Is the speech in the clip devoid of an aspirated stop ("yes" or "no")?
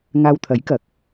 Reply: no